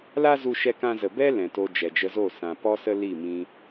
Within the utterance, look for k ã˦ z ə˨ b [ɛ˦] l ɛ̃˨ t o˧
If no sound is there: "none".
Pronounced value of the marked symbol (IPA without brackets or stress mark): ɛ˦